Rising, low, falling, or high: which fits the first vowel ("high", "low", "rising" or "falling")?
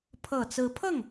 low